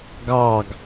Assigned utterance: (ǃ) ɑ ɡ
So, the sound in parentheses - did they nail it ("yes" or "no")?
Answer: no